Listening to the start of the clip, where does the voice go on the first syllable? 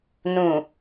low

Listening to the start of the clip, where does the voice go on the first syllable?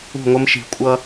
falling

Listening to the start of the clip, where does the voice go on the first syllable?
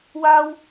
high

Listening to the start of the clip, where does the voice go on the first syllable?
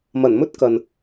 low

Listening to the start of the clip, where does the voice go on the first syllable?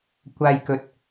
low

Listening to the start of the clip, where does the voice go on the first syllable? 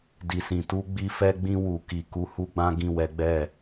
low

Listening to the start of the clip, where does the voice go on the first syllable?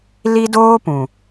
high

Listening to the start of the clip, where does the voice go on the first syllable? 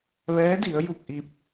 rising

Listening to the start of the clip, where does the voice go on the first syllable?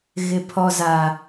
low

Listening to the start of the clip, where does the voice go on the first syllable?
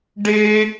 high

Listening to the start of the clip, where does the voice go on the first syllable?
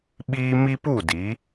high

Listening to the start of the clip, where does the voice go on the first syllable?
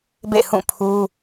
falling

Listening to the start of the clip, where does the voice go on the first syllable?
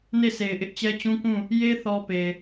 falling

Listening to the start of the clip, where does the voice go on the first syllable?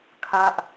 high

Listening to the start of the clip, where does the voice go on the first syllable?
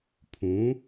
rising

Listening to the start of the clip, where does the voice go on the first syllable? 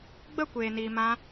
falling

